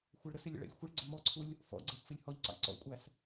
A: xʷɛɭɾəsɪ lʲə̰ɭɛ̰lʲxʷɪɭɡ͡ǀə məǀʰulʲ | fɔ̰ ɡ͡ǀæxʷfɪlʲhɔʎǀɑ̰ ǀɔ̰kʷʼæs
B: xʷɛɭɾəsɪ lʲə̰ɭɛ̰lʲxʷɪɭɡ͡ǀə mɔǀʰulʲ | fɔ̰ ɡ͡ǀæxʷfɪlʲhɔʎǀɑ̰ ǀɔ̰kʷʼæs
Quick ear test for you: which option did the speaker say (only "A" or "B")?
B